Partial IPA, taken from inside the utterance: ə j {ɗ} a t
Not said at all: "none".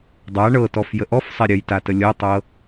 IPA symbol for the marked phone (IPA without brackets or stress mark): t